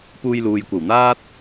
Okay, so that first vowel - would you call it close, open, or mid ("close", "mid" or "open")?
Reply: close